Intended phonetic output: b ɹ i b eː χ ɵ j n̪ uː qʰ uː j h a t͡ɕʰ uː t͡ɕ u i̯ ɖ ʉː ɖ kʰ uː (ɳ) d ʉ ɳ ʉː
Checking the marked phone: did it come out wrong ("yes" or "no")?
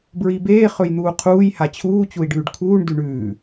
no